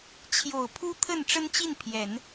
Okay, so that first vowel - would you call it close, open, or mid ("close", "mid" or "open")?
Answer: mid